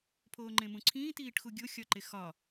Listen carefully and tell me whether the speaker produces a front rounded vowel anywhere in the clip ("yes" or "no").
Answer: no